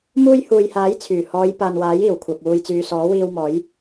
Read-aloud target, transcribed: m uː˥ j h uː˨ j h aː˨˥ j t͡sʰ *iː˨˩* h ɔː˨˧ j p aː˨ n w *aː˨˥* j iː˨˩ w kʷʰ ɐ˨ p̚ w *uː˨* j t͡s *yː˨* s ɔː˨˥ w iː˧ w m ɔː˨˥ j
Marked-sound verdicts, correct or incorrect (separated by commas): incorrect, correct, correct, correct